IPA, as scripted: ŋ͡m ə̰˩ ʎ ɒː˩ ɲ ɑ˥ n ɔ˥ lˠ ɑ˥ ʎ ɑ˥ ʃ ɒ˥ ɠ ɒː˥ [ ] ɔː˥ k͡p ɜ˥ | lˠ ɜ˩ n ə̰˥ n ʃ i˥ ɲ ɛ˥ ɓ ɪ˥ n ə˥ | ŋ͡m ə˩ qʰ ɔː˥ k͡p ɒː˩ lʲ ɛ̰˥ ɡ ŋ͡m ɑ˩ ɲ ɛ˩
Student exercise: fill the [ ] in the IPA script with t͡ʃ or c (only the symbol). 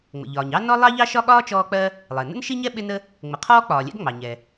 t͡ʃ